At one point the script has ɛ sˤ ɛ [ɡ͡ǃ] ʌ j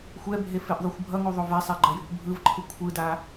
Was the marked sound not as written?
no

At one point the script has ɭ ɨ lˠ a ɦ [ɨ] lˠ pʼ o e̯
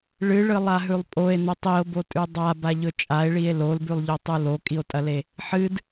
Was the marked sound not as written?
yes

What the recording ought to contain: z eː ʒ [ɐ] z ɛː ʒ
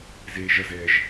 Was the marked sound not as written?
no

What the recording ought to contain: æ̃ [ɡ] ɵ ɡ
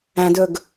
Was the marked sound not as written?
yes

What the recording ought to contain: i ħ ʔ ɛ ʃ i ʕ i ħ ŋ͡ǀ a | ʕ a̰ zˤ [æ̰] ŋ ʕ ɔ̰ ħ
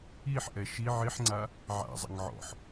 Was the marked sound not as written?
yes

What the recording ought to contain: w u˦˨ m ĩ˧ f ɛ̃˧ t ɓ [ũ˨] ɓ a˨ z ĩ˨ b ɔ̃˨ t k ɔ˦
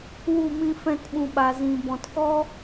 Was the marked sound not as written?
no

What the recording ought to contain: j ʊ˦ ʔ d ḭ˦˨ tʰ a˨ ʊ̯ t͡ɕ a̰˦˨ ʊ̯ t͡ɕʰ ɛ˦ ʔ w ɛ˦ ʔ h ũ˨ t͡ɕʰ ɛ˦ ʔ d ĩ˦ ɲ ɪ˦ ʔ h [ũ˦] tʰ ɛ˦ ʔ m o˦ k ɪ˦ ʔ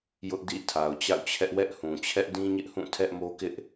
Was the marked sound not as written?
yes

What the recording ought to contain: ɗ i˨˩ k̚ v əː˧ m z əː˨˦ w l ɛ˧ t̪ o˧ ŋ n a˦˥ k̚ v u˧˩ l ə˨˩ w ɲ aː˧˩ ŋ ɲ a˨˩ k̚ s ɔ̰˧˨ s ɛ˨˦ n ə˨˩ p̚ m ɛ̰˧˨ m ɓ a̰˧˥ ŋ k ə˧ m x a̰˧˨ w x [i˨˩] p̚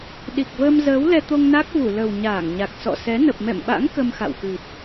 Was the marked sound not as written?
yes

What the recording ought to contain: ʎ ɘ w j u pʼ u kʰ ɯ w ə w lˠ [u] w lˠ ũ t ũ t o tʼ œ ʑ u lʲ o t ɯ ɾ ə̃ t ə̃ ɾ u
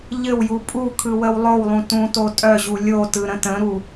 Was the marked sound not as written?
yes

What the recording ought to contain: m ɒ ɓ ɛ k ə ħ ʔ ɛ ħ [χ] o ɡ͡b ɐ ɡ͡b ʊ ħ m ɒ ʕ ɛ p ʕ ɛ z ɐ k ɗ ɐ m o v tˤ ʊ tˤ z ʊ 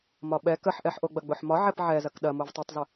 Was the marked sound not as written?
yes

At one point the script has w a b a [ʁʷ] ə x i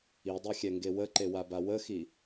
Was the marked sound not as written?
yes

